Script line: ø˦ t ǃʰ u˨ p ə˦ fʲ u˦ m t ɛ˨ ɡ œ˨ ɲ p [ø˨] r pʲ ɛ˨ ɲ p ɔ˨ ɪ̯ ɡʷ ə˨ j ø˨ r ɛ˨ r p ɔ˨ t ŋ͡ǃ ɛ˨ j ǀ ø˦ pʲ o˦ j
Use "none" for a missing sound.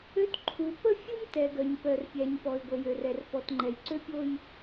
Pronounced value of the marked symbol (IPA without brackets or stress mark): œ˨